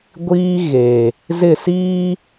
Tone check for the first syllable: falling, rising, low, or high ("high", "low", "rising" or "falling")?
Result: high